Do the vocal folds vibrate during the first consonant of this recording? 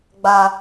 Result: yes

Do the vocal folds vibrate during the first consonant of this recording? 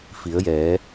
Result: no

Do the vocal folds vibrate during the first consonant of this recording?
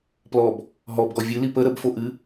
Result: no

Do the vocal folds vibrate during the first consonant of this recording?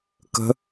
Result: no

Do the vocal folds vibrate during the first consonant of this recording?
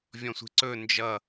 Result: yes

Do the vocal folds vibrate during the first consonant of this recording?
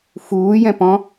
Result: no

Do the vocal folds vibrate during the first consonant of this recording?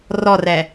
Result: yes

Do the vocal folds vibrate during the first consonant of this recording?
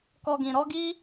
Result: no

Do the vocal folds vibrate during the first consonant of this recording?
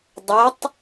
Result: yes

